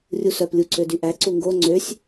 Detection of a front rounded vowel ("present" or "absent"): present